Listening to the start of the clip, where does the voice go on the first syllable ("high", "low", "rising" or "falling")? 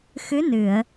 rising